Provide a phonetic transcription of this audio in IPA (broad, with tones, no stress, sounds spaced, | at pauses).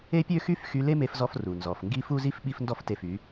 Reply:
e˥ pʲ ø˥ x y˥ f x y˧ l e˥ m e˧ f z ɔ˧ f r u˩ n z ɔ˩ f ŋ ɡ i˥ f u˥ z i˥ f ɓ i˥ f n d ɔ˥ f t e˥˩ f y˩˥